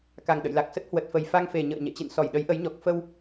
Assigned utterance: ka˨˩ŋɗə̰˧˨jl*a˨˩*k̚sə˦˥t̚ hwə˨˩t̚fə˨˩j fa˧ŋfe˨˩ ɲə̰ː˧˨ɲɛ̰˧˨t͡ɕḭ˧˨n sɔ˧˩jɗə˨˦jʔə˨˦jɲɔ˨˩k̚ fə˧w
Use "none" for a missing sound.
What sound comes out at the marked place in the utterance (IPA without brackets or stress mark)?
a˨˩